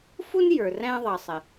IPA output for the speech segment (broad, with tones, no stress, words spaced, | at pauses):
fu˥n jə˞˩ræ̃˧ðˤʌ˩sˤɪ˩